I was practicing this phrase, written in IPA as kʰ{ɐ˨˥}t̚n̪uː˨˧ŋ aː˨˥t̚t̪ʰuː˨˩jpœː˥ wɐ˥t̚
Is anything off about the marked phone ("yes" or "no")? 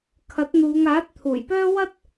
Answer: no